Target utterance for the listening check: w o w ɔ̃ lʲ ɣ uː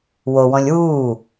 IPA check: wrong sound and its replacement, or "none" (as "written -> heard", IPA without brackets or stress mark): ɣ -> w